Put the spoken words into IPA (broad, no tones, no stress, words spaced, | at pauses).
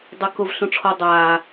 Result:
dˤɐkʊv ɬũʈ͡ʂʰɔ dˤaː